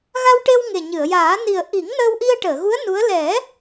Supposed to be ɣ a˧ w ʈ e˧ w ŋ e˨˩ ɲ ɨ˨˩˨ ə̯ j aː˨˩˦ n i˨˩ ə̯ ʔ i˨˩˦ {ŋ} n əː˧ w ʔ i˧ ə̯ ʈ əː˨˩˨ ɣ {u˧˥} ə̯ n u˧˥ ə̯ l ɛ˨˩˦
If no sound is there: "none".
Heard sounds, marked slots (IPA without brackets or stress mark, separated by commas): ŋ, u˧˥